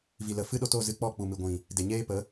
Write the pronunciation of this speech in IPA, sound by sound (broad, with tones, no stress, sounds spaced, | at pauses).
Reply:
v i˨ l ə˨ f ɨ˦ ɗ o˧ t o˦˨ z ɨ˧ k͡p ɔ˦˨ k͡p u˨ m ɨ˨ ɡʷ ĩ˨ | d e˨ ɲ eː˦ p ə˨˦